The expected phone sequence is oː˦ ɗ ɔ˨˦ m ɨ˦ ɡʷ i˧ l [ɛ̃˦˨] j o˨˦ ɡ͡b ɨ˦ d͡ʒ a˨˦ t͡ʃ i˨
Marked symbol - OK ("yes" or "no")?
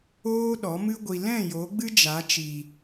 yes